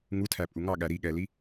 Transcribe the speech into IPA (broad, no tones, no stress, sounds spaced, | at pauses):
ŋ u tʰ æ pʼ u ŋ ɑ ɠ æ ɾ i ɠ ɛ l i